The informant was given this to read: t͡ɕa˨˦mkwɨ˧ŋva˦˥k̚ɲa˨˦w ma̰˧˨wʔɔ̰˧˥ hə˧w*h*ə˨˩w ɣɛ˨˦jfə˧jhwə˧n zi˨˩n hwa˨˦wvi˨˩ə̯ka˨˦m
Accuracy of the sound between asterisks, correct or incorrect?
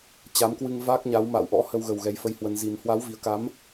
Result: incorrect